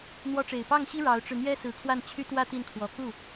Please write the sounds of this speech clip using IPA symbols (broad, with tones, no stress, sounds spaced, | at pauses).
n̪ w ɔ˧˥ ʈ͡ʂ e˨˩ ɪ̯ p ɑ˥˩ ŋ ɕ i˥ ɻ ɑ˧˥ ʊ̯ ʈ͡ʂ ɻ̩˧ n̪ j ɛ˥ s ɹ̩˧˥ kʰ w a˥˩ n t͡ɕʰ y˥ t̪ w ä˥ t̪ i˥˩ n kʰ w ɔ˧˥ k u˥˩